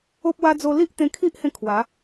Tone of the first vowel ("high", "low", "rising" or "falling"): high